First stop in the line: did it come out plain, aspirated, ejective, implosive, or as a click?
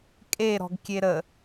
ejective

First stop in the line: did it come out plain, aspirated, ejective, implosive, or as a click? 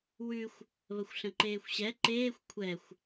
click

